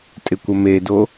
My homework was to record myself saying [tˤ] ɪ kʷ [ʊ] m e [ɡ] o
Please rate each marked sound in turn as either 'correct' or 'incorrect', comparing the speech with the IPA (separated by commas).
incorrect, incorrect, incorrect